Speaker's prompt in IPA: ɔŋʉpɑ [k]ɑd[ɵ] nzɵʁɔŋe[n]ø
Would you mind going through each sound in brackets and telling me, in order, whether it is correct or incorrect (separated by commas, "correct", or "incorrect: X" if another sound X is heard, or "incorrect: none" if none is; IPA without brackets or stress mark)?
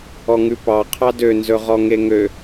incorrect: qʰ, incorrect: ø, incorrect: ŋ